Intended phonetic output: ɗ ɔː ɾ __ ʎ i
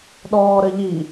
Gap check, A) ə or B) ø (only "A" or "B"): A